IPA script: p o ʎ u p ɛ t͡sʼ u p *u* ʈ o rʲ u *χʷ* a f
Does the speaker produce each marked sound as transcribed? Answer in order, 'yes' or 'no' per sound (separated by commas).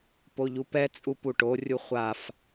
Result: yes, yes